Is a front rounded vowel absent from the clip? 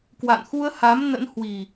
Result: yes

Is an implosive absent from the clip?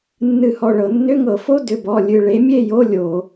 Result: yes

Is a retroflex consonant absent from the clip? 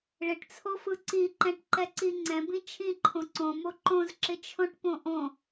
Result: no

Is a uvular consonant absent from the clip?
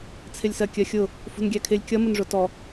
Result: yes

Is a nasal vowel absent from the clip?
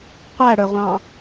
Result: no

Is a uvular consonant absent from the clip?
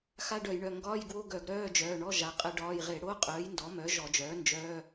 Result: no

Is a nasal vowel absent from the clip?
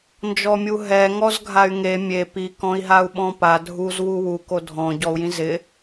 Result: no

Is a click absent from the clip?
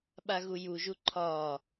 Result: no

